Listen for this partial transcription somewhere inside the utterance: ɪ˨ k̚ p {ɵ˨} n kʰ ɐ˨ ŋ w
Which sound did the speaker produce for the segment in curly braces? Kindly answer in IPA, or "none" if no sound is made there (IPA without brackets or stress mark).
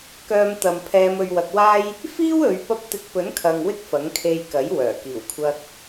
ɵ˨˥